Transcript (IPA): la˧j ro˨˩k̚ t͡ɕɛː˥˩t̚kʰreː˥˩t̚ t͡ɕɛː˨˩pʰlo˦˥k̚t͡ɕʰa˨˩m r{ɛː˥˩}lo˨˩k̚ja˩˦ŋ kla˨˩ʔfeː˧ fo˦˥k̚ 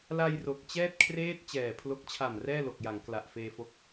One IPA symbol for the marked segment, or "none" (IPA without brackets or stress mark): ɛː˥˩